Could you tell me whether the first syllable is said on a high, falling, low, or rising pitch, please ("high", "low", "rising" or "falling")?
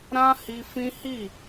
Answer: high